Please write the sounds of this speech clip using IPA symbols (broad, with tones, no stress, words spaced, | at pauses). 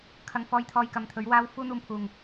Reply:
kʰɐ˨˧ŋfɔː˧j t̪ʰɔː˧jkɐ˨˧m t̪ʰɵ˨˥ɥwaː˥w fuː˥n̪uː˧mpʰuː˨ŋ